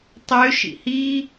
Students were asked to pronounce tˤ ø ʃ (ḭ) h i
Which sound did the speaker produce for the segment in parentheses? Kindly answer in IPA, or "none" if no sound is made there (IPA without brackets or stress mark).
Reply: ḭ